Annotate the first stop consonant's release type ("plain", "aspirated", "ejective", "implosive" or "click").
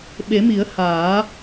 implosive